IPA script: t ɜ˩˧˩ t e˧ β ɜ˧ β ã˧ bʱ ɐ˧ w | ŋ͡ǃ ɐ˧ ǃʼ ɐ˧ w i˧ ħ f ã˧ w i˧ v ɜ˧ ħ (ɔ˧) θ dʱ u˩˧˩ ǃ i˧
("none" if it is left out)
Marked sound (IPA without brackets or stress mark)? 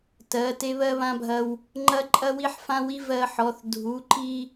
ɔ˩˧˩